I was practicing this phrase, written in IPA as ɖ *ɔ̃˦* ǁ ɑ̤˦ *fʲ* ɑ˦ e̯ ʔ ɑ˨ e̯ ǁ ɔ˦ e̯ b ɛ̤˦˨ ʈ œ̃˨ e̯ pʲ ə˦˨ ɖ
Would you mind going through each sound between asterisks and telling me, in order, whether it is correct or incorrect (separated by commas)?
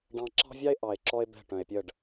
incorrect, incorrect